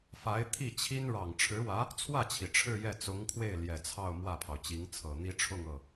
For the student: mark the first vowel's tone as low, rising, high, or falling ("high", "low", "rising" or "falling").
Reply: rising